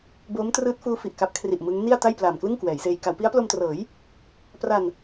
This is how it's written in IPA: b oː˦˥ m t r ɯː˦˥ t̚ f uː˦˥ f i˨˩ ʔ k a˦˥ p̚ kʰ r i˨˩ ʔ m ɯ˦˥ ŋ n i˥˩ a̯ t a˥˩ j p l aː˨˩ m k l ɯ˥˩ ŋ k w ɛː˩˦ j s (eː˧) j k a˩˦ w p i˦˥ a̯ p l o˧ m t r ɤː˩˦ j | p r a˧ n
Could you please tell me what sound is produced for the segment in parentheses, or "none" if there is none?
eː˧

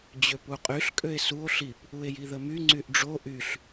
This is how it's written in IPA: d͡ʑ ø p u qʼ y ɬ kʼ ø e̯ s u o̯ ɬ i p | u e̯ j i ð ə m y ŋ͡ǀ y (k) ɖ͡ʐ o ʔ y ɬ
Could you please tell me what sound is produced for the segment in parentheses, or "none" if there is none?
ʔ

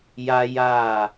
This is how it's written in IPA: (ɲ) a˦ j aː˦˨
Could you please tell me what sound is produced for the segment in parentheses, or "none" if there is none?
j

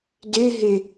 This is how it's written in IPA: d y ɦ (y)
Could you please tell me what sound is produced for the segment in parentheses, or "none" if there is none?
y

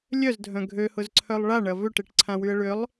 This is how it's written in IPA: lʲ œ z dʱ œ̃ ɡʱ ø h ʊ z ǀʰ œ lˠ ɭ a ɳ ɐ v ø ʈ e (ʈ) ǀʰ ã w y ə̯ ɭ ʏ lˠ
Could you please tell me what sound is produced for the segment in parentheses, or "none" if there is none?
ʈ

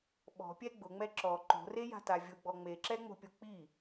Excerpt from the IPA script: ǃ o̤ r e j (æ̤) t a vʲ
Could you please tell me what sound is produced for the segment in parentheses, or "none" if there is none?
a̤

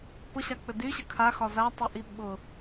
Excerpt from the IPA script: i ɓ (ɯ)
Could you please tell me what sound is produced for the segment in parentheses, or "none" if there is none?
ʊ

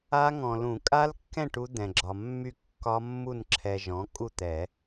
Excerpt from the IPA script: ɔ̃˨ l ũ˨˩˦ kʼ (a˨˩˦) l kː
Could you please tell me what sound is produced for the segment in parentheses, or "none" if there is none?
a˦˥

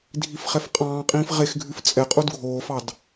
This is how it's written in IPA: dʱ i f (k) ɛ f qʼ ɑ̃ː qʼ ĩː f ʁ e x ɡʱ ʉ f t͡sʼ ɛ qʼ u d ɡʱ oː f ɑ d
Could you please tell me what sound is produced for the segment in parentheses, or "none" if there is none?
χ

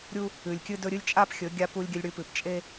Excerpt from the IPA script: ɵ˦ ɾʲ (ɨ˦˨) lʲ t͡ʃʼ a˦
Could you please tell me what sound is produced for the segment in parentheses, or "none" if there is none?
ɨ˦˨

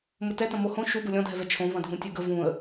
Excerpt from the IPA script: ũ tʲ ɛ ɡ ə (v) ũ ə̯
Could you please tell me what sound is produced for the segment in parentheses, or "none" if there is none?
v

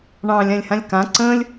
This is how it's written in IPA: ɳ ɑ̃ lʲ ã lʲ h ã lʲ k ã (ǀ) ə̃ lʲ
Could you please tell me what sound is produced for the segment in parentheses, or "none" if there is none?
ǀ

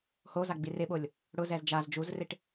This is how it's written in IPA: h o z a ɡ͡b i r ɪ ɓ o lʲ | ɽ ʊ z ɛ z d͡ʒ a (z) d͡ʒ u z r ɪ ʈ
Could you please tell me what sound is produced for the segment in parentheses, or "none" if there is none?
z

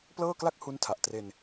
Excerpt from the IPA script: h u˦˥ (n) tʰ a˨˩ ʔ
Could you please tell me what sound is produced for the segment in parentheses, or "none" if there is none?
n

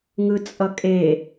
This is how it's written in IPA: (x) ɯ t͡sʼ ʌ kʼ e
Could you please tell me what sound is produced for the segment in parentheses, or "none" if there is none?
ŋ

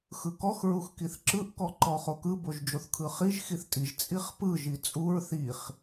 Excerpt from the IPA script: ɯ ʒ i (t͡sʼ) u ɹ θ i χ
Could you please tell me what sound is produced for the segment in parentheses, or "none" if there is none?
t͡sʼ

